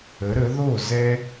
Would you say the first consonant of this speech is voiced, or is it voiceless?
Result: voiced